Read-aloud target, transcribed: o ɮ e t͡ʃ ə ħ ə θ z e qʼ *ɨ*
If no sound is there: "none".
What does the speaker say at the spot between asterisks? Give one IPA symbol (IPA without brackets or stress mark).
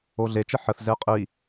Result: i